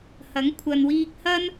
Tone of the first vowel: rising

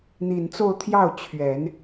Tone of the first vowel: low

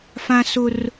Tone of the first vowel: high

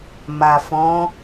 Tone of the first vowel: low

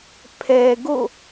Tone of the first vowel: low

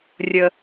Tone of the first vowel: low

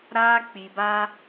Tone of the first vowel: high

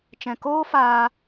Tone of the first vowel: low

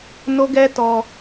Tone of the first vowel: high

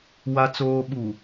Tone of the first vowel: low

